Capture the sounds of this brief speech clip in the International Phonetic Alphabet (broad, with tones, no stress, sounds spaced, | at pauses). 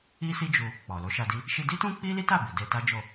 i˦ s i˦ d͡ʒ u˧ | k͡p ɔ˨ l o˨˦ ʃ a˧ d i˦ | ʃ i˧ d i˦ t ũ˦ k͡p i˦ l i˦ t a˦˨ b i˨ d e˧ t a˦ d͡ʒ o˦˨